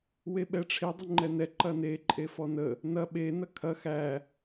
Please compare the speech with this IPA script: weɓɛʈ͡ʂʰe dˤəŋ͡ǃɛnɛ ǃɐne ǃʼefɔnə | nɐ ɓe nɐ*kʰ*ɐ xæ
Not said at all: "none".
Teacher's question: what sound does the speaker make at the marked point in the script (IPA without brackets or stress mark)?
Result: kʰ